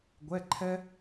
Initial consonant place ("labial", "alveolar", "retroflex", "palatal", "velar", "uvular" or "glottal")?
velar